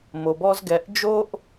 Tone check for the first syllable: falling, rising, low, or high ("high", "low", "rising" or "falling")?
low